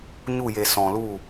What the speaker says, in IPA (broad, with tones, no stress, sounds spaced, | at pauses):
ɲ u˦˨ j e˨ s ɔ̃˨ l u˦˨